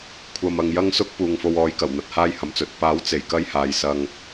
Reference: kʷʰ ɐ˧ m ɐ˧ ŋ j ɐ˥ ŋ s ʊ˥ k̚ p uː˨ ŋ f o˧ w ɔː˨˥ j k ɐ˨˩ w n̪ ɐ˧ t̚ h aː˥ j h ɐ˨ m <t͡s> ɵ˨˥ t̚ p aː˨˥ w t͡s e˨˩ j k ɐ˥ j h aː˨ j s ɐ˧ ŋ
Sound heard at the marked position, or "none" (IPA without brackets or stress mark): t͡s